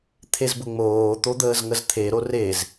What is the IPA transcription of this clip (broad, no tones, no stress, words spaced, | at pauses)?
t̪ʰezbʊŋ͡moː t̪od̪əːzŋəzt̪ʰe ɾorez